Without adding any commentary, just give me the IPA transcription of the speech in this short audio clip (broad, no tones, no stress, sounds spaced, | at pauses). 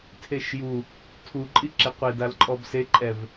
tʰ e ʃ j u | tʰ u ǃʼ i ǁ e qʷ e d a l ǃʼ ɔ b s e ǃʼ ɛ v